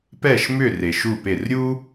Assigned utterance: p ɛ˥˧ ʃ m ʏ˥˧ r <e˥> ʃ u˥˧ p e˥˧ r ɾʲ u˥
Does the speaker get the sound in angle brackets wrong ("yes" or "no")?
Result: yes